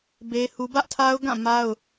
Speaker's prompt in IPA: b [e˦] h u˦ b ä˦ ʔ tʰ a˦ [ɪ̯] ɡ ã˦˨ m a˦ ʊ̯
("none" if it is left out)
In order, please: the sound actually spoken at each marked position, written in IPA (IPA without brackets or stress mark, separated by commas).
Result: e˦, ʊ̯